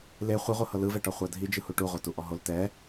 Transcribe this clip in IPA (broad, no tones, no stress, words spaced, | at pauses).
le χʷiʁʷɯhɤ lɯvɛʈɔ χʷadʱid͡ʒɯ huʈuʁʷatu ʔɔɦol tɛ